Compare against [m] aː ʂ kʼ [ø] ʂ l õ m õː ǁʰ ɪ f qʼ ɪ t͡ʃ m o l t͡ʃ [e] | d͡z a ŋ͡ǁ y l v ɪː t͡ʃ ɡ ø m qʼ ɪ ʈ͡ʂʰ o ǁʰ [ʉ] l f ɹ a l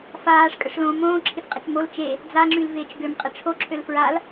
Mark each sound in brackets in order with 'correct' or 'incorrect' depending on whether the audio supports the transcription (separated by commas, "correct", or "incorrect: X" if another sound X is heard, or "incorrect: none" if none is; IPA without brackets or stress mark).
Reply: incorrect: f, incorrect: ə, correct, incorrect: ø